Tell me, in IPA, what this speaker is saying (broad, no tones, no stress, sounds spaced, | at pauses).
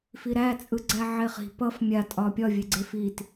f i ɾ æ t͡sʼ ɯ ɡ͡ǀ æ ʕ e χ i̤ p ʌ f mʲ a tʼ ɒ pʲ ɒ vʲ e ɡ͡ǀ e f i t